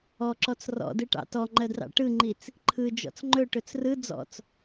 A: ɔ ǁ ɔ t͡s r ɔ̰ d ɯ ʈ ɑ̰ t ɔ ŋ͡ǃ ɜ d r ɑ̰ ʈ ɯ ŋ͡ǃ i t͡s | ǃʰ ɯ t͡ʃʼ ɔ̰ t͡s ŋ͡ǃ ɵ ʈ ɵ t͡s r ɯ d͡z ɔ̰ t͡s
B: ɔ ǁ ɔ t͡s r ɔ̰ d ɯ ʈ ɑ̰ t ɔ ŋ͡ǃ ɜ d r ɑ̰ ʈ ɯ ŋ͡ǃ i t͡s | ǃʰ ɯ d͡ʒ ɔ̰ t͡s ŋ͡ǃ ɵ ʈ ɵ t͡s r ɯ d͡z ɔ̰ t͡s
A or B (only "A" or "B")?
B